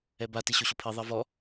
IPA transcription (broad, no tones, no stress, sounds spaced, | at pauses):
ɛ b a t i ɕ o ɕ o pʰ i ðˤ ɛ v ɔ